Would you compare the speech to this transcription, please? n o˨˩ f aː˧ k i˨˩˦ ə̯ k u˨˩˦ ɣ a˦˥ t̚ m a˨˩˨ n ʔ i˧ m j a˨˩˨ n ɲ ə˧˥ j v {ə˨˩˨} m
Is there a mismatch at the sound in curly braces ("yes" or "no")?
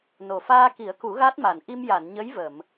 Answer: no